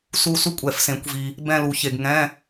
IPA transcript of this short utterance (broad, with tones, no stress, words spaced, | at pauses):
su˥˧ su˥ kʷʼɛ˨˩˦fsẽ˩˥kʷvi˨ | bɛ̃˥˧lu˨˩˦çe˨ɡ ŋɛ̃˧˥˧